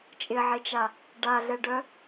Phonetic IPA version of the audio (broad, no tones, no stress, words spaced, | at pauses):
t͡ʃʼɪʕet͡ʃa | ɖaɮɛɖœ